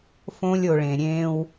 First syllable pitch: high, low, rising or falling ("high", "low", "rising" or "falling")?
high